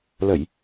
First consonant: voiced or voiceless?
voiced